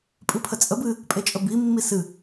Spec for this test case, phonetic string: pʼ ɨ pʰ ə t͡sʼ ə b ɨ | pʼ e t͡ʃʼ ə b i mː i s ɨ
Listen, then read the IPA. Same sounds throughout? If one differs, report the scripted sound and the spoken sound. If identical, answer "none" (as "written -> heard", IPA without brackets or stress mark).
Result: none